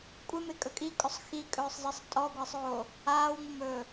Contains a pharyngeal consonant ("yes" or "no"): no